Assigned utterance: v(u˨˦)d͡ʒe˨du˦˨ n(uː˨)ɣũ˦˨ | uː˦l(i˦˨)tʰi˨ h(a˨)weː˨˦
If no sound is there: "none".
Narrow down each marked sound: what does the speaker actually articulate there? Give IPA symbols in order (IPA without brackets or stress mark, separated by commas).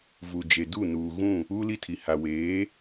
u˨, uː˨, i˦˨, a˨